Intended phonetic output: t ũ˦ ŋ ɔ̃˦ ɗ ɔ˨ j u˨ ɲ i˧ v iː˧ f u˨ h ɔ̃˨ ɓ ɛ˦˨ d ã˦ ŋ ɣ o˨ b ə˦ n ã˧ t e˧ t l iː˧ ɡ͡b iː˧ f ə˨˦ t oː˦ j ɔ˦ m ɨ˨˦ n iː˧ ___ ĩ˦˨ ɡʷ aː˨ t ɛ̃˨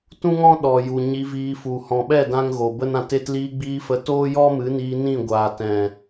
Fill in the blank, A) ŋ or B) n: B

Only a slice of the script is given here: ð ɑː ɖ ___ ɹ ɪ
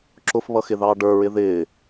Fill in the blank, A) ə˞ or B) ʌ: A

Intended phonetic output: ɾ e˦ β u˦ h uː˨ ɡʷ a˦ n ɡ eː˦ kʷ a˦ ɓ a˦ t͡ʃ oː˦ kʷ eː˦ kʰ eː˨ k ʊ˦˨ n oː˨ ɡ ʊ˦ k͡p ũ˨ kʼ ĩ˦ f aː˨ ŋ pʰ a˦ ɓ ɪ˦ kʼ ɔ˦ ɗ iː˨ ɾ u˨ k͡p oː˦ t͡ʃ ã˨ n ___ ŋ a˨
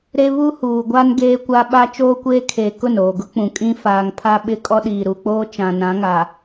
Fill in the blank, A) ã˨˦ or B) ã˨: A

